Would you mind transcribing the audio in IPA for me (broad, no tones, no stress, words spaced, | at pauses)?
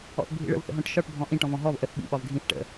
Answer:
ɔ̰θbʱḭɭə̰v θə̰ɦɔ̃ʈʃɒʈ bʱɔ̃ʔĩ ʈɔ̃vɔ̃ɦɔv ʔəθ ɓḭ ɓɒvɡʱĩθ ʈə̰